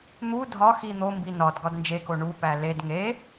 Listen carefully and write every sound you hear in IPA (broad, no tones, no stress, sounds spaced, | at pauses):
n̪ u dʱ ɒ x i n̪ o m b i n ɒ d ɡ ɒ d n d͡ʒ e k o ɳ u p æ l e d ŋ e